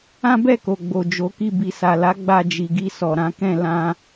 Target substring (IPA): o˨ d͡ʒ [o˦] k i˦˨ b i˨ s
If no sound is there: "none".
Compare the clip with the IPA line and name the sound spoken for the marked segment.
o˨˦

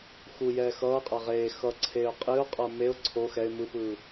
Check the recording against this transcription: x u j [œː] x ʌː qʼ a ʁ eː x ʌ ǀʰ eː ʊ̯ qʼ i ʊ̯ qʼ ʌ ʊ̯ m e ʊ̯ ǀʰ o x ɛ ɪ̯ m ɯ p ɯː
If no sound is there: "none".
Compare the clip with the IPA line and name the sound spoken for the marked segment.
ɛː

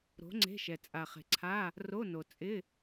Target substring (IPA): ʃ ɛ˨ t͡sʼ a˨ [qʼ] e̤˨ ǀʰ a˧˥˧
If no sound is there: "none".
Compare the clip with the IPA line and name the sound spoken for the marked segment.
χ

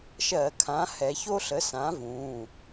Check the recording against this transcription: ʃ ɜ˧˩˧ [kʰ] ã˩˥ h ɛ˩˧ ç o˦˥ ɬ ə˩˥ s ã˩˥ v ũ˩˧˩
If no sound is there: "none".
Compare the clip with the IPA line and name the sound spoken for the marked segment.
kʰ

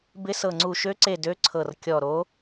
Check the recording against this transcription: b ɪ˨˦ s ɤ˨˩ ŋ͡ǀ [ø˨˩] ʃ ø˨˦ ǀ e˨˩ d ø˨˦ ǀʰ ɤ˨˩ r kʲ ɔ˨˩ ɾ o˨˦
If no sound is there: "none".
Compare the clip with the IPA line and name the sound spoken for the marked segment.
u˨˩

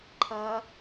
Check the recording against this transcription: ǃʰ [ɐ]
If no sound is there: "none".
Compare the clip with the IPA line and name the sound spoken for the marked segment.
ɐː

